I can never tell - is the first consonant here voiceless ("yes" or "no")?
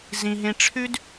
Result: no